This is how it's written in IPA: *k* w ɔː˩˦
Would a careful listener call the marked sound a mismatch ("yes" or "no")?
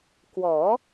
no